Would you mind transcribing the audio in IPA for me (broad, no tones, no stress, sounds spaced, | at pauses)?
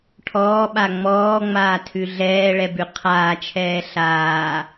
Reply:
ʈʰ ɔː ɓ a ŋ͡m ɔː ŋ͡m aː tʰ ʉ ɮ ɛː ɭ ɛ b ʉ qʰ aː t͡ʃʰ ɛː ɬ aː